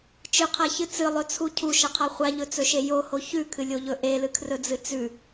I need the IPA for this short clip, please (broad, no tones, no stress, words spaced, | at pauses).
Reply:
t͡ʃɨqʰaçɨ t͡sɨlˠɵt͡sʰu cʰuʃɐqʰa χʷaʎɵt͡sɵʃe joho çʉkʰɨlʲoʎɵ ʔelɨkʰrɵd͡zɨ t͡sʉ